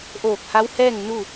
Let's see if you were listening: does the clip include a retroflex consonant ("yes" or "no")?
no